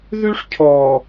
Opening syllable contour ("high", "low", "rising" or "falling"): high